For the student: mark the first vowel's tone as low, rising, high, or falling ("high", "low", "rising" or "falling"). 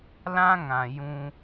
high